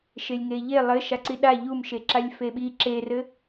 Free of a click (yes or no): no